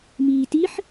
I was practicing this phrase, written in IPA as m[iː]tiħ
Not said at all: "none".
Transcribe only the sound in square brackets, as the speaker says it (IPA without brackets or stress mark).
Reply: iː